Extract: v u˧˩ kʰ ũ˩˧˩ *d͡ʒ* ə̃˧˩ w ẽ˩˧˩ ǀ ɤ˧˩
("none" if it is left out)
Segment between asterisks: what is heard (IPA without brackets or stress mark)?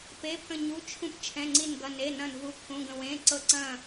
ɡ